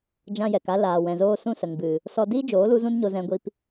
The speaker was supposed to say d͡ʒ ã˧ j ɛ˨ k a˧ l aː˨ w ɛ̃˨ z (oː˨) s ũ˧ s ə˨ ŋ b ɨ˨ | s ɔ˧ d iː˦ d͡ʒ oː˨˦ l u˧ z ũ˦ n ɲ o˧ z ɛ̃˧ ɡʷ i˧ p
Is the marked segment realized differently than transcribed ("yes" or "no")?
yes